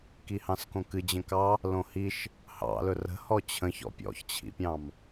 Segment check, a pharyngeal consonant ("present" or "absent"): absent